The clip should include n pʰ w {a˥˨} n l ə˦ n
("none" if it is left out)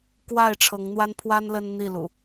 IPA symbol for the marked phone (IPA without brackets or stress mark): a˦